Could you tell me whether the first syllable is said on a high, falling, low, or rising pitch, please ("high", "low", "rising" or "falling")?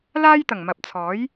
high